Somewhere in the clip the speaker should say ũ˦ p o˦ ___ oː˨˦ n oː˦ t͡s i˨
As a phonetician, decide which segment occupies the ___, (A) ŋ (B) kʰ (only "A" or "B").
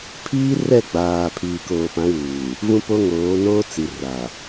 A